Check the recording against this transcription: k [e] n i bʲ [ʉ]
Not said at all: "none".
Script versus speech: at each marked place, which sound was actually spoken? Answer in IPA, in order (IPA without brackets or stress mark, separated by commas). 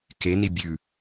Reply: e, ʉ